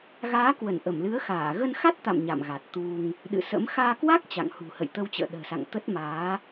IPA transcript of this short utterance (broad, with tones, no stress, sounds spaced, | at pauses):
ɣ aː˨˦ k w ə˧˩ n ʔ ə˧˩ m l ɨ˨˦ ə̯ x aː˧˩ ɣ ə˧ n x a˦˥ t̚ t̪ a̰˧˨ m ɲ a̰˧˨ m ɣ a˨˩ t̚ t̪ u˧ ŋ | ɗ ɨ̰˧˨ s ə̰˧˥ m x aː˧ k w a˦˥ k̚ t͡ɕ a̰˧˨ ŋ h ṳ˨˩ h ə̰˧˨ j t̪ ə˧ w t͡ɕ ə̰ː˧˨ ɗ ə̤ː˨˩ s a̰˧˨ ŋ t̪ ə˦˥ t̚ m aː˨˦